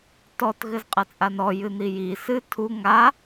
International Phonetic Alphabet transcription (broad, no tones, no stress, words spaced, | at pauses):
tɔt ɣɘzqʼɐt͡sʼanɔ jɨn̪iji sɨ tʰu ŋa